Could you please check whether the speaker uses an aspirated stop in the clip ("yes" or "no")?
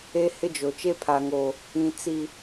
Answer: yes